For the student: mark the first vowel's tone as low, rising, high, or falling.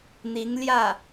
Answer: rising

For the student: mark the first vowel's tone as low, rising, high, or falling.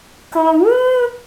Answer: low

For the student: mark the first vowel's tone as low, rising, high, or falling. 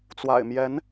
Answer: low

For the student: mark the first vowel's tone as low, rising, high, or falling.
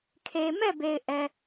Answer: low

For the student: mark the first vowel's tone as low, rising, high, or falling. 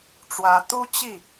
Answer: rising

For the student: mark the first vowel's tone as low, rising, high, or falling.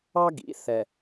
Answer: high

